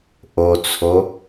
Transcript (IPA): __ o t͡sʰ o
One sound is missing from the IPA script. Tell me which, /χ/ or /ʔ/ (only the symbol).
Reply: ʔ